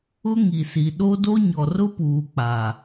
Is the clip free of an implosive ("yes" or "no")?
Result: no